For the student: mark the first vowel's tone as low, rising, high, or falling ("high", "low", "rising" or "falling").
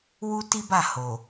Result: high